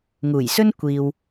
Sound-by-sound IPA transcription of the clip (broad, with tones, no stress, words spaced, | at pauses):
ŋuː˨˩jsɵ˥n kʷiː˨w